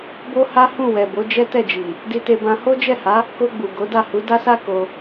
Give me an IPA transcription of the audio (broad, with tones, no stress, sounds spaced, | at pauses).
b o˦ h a˦ h ũ˦˨ w ɛ˨ b o˨˦ d͡ʒ ɛ˦ t ɛ˦˨ d͡ʒ i˨ | d i˧ t e˧ b ã˧ h o˦ d͡ʒ ɛ˦˨ h a˨˦ | k o˧ ɡ͡b u˨ ɡ o˨˦ d a˦˨ h u˨˦ d a˦ s a˦ k o˧